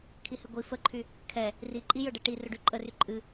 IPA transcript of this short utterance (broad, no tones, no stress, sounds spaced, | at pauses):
kʰ i h ɨ ɡʷ i f ə ǃʰ y | kʰ ɛ | r i ǃʼ i j ɵ ɖ ɛ ʈ i r ɵ ɖ y ǃʼ ə r y ǃʼ ɨ